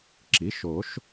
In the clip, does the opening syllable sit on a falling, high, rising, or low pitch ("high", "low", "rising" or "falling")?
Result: rising